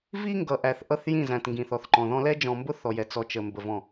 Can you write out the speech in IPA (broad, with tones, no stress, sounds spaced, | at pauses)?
v i˦ ŋ ɡ ʌ˨ ʔ æ˨ θ ʔ ʌ˦˨ θ j ĩ˦˨ z æ̃˨ t ŋ ɡ ĩ˨ θ ɔ˨ θ ǃ ɔ̃˨ ð ɔ̃˦ l ɛ˦ d͡ʒ ɔ̃˨ m b ʊ˦ θ ɔ˨ j ɛ˨ t͡s ɔ˨ t͡ʃ ə˨ m b ə˨ v ɔ̃˨